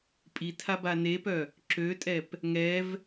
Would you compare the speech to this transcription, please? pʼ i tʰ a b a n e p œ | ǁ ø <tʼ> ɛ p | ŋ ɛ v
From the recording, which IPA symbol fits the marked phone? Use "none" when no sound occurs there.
tʼ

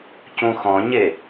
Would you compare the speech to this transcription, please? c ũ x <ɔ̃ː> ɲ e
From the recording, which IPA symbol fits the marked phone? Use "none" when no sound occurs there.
ɔ̃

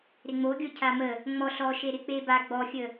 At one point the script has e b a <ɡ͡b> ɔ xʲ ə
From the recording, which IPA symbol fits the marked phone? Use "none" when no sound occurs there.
ɡ͡b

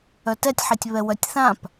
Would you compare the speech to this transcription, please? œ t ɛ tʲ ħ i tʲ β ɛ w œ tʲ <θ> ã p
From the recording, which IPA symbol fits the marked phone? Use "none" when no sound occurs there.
θ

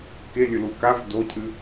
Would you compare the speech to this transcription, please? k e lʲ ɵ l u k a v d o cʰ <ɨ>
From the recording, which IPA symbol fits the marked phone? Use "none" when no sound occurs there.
ɨ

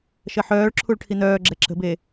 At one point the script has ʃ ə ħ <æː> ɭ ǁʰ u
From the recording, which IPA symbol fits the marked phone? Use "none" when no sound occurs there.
œː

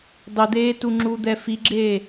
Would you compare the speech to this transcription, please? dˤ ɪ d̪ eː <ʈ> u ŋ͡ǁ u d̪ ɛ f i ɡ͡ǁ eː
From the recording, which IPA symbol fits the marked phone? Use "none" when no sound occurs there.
t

